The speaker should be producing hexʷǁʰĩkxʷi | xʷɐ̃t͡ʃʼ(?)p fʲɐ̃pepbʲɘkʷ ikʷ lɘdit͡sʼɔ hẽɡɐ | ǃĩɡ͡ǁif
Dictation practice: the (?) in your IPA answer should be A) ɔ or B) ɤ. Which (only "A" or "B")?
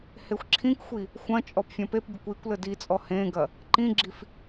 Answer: A